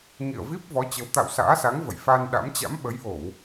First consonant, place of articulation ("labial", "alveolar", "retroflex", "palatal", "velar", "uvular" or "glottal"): velar